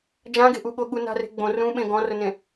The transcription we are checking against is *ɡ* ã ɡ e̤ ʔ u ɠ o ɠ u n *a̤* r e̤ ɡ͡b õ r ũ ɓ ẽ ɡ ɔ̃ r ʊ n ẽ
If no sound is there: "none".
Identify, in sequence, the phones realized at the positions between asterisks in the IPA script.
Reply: d͡ʒ, a̤

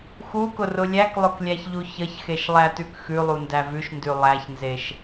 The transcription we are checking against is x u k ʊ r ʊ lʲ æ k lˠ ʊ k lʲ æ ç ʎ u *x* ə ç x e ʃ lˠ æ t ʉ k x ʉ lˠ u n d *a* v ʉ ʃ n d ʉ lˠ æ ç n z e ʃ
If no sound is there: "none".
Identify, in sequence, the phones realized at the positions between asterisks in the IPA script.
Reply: ç, æ

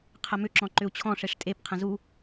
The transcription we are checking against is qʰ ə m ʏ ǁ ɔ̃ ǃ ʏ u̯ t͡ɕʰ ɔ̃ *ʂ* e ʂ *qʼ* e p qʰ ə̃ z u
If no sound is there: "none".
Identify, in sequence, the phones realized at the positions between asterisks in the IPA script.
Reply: ʂ, tʼ

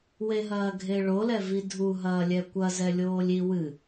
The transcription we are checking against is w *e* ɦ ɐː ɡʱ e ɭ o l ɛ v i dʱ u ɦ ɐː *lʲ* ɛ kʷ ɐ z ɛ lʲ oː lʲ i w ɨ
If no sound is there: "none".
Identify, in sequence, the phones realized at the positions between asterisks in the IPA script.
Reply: e, lʲ

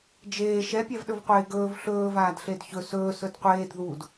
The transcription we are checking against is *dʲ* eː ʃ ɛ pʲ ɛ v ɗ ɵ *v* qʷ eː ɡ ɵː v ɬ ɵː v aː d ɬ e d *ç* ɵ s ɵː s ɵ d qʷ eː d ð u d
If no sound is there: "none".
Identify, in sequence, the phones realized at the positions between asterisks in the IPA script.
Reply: d͡ʒ, v, ç

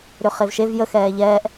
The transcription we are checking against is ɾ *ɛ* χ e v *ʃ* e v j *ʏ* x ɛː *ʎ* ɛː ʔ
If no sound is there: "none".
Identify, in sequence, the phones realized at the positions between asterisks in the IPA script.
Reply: ʏ, ʃ, ə, ʎ

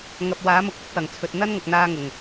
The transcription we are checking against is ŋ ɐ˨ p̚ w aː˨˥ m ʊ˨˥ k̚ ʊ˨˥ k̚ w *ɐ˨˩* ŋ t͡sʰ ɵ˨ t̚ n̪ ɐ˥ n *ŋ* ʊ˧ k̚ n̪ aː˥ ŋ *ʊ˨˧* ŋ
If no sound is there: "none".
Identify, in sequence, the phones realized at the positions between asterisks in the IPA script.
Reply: ɐ˨˩, ŋ, ʊ˨˩

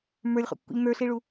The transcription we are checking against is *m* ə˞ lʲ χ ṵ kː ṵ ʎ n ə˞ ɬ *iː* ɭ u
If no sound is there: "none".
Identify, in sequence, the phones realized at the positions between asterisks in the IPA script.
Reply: m, i

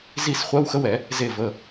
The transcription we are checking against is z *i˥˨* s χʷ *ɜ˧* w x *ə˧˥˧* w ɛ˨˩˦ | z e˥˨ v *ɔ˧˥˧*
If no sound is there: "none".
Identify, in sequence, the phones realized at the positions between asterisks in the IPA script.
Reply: i˥˨, ɜ˧˥˧, ə˧˥˧, ə˧˥˧

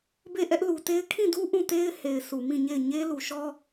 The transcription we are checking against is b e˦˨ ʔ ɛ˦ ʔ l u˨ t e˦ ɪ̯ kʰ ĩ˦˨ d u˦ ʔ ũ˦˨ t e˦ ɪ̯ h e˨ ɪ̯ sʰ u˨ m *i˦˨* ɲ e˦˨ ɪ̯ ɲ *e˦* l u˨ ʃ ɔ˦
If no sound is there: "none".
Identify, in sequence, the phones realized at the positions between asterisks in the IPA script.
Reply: ĩ˦˨, e˦

